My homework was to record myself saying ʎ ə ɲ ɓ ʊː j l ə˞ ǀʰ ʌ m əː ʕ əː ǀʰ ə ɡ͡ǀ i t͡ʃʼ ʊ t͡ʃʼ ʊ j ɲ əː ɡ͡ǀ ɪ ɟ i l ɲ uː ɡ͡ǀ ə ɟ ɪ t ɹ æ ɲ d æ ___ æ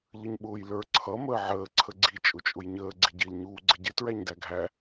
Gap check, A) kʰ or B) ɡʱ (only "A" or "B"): B